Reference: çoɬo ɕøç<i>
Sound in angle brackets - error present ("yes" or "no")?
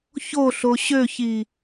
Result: no